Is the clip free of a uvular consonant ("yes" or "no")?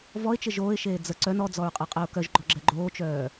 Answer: no